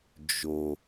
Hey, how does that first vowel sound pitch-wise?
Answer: low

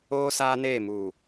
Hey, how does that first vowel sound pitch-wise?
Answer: high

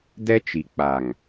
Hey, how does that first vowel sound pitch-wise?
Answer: high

